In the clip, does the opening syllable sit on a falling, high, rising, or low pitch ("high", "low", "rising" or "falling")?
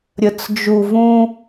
low